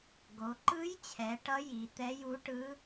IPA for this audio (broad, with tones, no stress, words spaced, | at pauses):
ɡo˩˧ǃɯ˧˥jt͡ɕʰɛ˩˧ ʈʌ˧˥ ji˩˧ t̪ɛ˧˥ju˧˥ʈɯ˧˥